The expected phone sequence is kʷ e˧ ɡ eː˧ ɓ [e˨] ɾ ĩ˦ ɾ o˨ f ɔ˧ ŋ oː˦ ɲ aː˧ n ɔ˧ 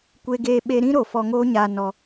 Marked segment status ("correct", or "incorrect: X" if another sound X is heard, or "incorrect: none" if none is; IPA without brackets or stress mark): incorrect: e˧